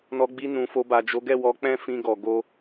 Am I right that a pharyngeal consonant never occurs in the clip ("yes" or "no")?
yes